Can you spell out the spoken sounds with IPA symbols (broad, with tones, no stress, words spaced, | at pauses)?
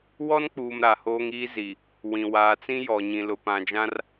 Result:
wɔ˦nk͡puː˨m ɾa˨hoː˦ŋiː˦ zi˨ | wĩ˨ waː˨t͡sĩ˦ jɔ˨ ɲĩ˨lʊ˨ pã˨d͡ʒã˦r